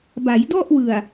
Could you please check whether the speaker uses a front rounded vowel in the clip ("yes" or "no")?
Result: no